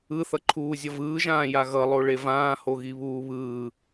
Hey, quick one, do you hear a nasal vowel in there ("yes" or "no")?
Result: yes